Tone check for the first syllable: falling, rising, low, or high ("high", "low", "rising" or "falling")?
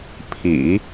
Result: low